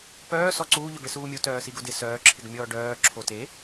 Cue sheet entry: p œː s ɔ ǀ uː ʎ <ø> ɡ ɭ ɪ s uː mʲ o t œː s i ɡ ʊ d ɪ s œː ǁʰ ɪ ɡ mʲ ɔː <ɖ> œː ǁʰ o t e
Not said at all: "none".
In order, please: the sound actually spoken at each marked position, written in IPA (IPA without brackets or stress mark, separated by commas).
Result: ø, ɖ